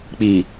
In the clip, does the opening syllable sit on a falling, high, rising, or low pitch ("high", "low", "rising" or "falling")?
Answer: low